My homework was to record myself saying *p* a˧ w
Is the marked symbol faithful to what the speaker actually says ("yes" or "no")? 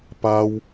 yes